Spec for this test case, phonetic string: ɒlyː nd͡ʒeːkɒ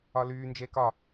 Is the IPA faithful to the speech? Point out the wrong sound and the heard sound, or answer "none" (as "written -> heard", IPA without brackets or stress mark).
none